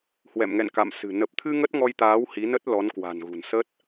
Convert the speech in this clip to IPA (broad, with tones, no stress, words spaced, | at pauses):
hwɛ̰˧˨mŋɛ̰˧˨n ka̰˧˨msɨ̤˨˩ nə˨˩p̚t̪ʰɨ˧ ŋə˦˥t̚ŋɔ˧jt̪aː˨˦w hi˨˦nə˦˥t̚ lɔ˨˦nkwa̤˨˩nɣṳ˨˩n sə˦˥t̚